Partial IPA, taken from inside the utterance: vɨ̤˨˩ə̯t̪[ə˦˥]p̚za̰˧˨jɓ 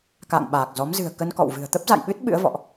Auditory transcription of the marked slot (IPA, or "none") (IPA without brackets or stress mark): ə˦˥